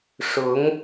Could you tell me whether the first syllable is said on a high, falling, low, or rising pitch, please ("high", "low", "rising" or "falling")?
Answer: rising